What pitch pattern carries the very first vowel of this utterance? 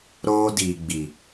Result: high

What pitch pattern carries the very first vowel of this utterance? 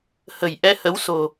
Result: low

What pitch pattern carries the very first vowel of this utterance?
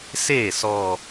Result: falling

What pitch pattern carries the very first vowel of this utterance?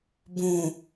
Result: low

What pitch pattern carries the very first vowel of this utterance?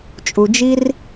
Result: low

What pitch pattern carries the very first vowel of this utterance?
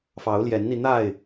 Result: rising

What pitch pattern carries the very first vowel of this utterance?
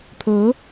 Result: rising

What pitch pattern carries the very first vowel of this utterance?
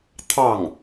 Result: falling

